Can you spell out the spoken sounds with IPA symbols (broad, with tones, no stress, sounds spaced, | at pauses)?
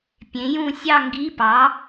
pʲ ẽ˨˥ j ũ˥˧ sʲ ɑ˥˧ ŋ ɡ i˧˥˧ p ɑ˨˥